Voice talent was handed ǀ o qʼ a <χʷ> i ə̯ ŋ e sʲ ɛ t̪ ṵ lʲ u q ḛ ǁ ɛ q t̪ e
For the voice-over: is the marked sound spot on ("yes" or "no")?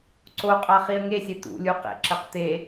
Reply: no